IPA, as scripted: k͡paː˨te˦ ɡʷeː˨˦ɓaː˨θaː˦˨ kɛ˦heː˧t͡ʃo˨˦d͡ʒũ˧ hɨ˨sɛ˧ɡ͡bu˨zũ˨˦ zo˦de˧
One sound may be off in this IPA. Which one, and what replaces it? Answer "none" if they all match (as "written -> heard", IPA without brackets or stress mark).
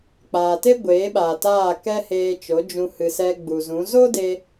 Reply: θ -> t